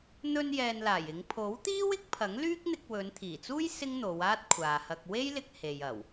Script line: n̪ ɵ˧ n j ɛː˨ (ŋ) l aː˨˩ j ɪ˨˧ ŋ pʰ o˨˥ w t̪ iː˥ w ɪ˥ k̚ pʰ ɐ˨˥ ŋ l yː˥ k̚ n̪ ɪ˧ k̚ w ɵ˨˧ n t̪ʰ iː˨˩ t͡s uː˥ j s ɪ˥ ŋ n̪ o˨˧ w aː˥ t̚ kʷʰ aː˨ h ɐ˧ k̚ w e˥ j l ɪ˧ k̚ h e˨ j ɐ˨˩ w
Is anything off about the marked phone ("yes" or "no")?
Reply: yes